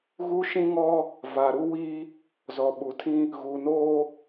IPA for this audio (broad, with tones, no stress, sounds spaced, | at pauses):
ɣ u˦ ʃ ĩ˦ ŋ ɔ˦ | v a˨ ɾ u˦ w iː˦ | z ɔ˨ ɓ u˨ tʰ ĩ˦ | ɣ u˨ n oː˦